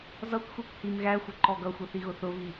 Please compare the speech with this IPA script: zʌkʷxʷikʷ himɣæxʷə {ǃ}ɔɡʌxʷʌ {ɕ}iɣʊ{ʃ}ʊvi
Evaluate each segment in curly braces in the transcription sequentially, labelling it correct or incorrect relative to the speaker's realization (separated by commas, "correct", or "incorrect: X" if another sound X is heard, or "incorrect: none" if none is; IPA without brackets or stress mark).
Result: correct, incorrect: θ, incorrect: θ